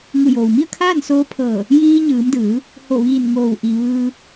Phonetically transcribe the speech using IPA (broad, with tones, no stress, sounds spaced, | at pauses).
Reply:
ŋ u˧˩ j oː˩ w m i˥˨ ə̯ kʰ aː˥˨ n s oː˧˥ pʰ ɤː˧˩ | j iː˧ ɲ ɯː˩˧ m d ɯː˩˧ | h o˧˩ ʋ iː˧˩ n ŋ oː˧˩ w ʔ i˩ ʋ ɯː˧